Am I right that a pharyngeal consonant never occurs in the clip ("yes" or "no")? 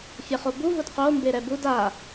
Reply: yes